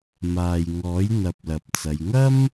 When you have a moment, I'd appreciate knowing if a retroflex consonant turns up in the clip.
no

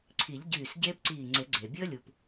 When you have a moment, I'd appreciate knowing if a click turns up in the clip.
yes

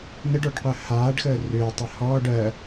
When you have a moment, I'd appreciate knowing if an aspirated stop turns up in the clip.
no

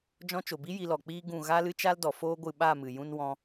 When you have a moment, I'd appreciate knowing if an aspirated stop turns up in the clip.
no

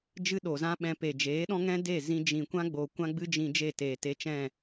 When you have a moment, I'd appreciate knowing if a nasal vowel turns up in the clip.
yes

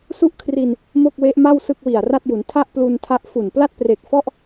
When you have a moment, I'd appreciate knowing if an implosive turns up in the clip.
no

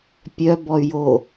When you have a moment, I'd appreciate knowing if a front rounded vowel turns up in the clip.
yes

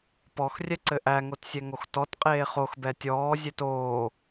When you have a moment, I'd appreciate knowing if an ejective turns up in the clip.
yes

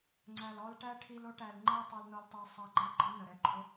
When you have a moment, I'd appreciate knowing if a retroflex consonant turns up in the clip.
yes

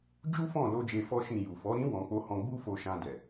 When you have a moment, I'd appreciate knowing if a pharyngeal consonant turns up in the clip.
no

